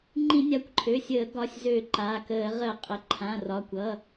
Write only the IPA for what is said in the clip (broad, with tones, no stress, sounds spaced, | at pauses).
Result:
ŋ͡ǃ ĩ˧˩˧ nʲ a˩˧˩ kʷ ǃʰ ø˩˧˩ sʲ əː˧˩˧ ɡ ɒ˩˧˩ sʲ z ø˧˩˧ ǃ a˩˧˩ k əː˧˩˧ ʁ ə˧˩˧ qʼ ə˩˧˩ ǃʰ ã˩˧˩ r ɒ˩˧˩ kʷ ʌ˩˧˩